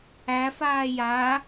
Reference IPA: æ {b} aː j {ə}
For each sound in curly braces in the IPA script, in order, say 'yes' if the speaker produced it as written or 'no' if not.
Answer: no, no

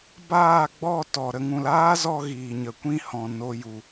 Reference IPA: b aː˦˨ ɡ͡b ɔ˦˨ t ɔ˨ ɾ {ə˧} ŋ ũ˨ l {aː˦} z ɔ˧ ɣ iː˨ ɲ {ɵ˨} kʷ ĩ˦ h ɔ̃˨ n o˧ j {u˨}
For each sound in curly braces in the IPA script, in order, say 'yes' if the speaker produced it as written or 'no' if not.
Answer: no, yes, no, yes

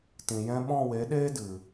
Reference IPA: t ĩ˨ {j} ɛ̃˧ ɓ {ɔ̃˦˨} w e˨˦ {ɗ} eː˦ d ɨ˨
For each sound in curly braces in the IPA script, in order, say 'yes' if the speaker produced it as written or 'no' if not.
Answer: yes, yes, yes

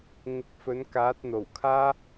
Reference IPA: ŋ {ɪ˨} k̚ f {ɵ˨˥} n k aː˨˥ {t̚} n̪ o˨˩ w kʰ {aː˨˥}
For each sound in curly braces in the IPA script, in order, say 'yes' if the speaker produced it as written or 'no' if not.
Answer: no, yes, yes, no

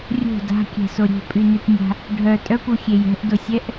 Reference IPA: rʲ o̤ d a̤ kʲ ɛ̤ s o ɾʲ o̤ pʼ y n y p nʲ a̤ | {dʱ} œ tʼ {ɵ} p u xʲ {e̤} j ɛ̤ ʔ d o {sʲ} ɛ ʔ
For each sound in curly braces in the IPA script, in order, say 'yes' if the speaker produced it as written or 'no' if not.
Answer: no, no, no, yes

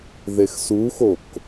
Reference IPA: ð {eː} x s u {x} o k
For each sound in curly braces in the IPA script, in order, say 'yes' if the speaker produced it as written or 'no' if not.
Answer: no, yes

